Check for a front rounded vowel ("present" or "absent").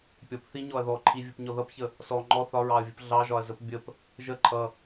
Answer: absent